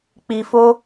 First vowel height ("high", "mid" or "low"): high